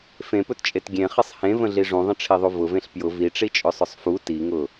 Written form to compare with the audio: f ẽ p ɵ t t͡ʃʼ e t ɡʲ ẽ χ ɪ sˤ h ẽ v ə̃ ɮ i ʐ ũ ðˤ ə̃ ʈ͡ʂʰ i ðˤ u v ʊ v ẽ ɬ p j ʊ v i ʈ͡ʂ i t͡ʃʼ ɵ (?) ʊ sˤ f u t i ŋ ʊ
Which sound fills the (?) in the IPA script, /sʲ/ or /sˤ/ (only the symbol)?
sˤ